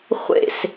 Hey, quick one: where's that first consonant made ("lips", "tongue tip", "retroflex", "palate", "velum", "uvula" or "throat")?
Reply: uvula